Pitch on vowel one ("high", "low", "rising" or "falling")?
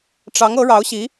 rising